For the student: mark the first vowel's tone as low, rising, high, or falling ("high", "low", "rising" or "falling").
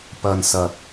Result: low